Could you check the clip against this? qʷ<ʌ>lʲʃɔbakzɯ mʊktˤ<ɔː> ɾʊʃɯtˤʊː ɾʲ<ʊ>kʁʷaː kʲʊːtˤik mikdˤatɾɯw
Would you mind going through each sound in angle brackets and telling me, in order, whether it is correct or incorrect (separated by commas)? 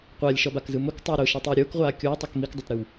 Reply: incorrect, incorrect, incorrect